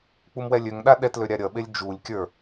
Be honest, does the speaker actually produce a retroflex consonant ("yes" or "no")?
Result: no